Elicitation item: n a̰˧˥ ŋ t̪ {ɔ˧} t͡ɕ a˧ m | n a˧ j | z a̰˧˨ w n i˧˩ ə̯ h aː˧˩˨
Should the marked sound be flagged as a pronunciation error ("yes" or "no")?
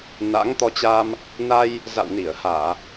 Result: no